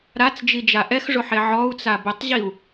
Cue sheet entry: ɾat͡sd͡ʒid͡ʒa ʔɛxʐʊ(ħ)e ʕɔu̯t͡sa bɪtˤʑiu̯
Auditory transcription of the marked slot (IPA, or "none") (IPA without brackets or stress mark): ħ